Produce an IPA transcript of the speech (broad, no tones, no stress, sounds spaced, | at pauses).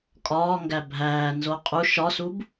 kʼ ɒː ŋ ɡ æ bʱ æː n z o qʼ u ʃ ɒ s u b